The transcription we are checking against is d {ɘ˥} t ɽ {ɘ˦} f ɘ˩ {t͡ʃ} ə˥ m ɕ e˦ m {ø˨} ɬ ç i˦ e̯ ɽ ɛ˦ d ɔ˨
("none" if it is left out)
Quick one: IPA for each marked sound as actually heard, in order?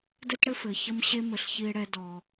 ɘ˥, ɘ˦, ç, ɘ˨

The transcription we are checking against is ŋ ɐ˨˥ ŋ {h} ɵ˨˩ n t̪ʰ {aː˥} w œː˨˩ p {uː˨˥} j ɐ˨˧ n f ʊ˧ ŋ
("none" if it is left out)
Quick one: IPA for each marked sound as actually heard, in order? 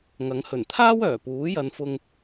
h, aː˥, uː˨˥

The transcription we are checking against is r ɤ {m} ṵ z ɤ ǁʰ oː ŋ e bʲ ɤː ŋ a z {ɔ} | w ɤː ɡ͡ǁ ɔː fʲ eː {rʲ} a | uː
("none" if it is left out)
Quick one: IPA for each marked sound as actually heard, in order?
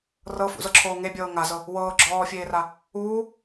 f, ɤ, r

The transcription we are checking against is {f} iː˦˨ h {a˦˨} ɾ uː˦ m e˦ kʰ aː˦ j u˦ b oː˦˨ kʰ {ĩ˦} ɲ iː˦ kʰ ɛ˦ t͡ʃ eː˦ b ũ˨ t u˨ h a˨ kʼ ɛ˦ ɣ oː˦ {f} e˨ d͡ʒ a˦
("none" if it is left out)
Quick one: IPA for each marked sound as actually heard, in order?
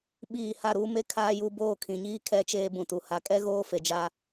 ɓ, a˦˨, ĩ˨, f

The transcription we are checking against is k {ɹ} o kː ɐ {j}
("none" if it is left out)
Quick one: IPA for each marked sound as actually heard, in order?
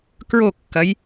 ɹ, j

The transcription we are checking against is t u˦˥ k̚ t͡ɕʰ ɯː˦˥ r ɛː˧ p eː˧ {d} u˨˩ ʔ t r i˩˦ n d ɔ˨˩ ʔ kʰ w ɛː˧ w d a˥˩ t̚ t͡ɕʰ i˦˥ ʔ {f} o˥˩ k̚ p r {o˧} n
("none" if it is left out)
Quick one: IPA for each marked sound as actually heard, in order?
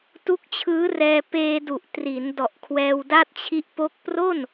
d, p, o˥˩

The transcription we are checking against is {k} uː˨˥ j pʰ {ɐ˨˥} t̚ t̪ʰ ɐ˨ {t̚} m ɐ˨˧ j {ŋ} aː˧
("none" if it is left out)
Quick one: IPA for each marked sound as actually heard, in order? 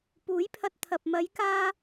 p, ɐ˧, p̚, k

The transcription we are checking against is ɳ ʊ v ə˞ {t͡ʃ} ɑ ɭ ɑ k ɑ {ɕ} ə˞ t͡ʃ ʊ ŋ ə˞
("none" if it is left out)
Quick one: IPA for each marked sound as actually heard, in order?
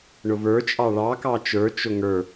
t͡ʃʼ, t͡ʃ

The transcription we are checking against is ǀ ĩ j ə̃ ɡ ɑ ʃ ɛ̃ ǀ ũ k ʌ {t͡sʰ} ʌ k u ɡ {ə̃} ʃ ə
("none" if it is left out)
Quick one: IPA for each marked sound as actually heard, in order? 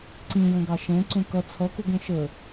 t͡sʰ, ə̃

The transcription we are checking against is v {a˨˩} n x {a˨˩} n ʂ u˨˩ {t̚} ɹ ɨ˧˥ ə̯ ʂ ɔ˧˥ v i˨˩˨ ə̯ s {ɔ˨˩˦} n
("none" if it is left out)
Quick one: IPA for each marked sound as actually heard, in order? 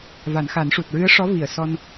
a˨˩˦, a˨˩˦, t̚, ɔ˧

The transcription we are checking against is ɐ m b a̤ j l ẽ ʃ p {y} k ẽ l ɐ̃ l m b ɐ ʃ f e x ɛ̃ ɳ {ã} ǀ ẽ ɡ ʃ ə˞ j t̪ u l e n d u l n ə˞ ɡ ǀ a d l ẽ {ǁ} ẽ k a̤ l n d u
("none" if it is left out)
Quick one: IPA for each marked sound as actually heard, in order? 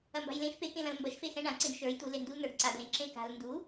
e, ã, ǁ

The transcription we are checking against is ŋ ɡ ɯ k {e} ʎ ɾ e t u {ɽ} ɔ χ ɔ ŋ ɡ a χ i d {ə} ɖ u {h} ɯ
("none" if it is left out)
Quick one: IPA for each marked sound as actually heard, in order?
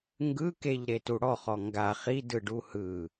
e, ɽ, ɯ, h

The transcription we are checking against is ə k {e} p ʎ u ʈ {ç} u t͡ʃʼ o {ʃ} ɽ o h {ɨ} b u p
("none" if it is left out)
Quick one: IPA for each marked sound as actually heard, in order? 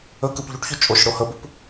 ɨ, ç, ʃ, ə

